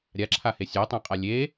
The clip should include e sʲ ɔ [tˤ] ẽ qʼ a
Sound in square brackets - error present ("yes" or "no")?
no